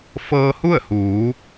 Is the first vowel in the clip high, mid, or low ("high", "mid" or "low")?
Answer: mid